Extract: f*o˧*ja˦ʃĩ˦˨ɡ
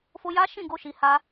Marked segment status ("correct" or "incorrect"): correct